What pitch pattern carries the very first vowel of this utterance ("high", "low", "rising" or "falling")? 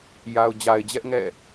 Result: low